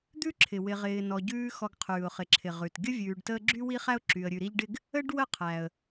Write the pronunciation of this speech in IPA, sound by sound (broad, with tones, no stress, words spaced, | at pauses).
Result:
d̪ʉ˥ǁʰɪ˩ wɪ˨ʁɪː˨nɔ˨ɟʉː˦ xɔ˨ɡqʰʉː˩ʊ̯χɪ˩ǁʰɪ˩ ʁʉ˩t ɡʲə˥vʲʉː˨ɖtəː˦ɡ͡ǁy˥ wi˥χæ˥ʊ̯ǁy˨ə̯ ɾʲʉ˨ɾi˦ʎɖɪ˥ɡ | ə˥ɖ wə˥qʰæ˩ə̯